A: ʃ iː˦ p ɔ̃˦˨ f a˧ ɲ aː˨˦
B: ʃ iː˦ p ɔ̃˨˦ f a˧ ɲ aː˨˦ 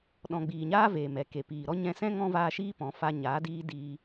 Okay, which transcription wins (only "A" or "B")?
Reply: B